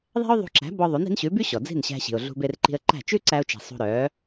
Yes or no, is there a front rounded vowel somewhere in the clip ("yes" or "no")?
yes